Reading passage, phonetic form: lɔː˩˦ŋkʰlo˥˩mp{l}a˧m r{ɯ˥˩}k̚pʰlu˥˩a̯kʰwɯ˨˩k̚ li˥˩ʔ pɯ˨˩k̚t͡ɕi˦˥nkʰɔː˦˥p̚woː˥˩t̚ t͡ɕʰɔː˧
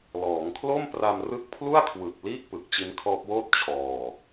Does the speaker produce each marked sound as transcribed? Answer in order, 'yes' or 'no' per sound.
no, no

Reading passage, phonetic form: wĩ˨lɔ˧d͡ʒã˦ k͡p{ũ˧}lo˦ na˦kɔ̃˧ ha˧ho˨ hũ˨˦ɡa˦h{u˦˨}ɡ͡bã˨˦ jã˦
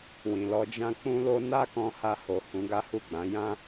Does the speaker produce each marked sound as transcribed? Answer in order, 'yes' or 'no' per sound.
no, yes

